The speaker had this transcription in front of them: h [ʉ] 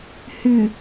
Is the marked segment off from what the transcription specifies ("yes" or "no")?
no